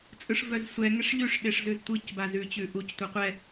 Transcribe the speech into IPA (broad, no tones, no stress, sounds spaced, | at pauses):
t͡sʼ ɯ ʂ v œ z sʷ ɛ ŋ ɛ ʂ ʎ ʉ ʂ ɗ e ʂ z ʉ z tʷ ɯ c b a z ʉ t͡ɕ ʉ ʔ u c tʷ a qʷ ɛ